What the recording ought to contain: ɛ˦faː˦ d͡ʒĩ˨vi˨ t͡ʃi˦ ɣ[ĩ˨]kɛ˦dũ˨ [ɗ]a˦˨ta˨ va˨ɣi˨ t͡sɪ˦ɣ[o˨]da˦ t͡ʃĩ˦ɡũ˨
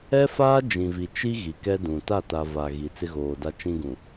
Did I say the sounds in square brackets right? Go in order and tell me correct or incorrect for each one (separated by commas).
incorrect, incorrect, incorrect